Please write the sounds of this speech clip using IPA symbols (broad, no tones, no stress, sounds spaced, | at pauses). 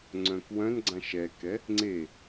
ŋ͡ǀ œ̃ k w œ̃ n ɡ͡ǀ ã ʃ ɛ k ɛ | ŋ͡ǀ e